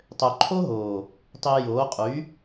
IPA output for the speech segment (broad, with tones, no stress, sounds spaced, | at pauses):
tˤ ø˨ ǃʰ o˦ ɦ oː˨ | tˤ iː˧ j oː˨˦ qʼ y˨˦